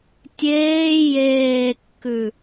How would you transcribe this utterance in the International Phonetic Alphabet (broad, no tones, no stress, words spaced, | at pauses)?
tʲeː jeːkːʉ